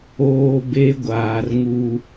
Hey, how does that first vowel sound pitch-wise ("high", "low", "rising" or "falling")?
low